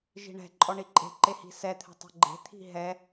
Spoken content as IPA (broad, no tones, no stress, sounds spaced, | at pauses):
ʒ i̤ ɳ ɛ̤ ǃʼ ɔ ɳ i ǃʼ e̤ ǃ e h i̤ s ɛ t̪ʰ ɛ̤ tˤ ə̤ ɡ͡ǃ e̤ t̪ʰ i̤ ɦ ɛ